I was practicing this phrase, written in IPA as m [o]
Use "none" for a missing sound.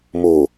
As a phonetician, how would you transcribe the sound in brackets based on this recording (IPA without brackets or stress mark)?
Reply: o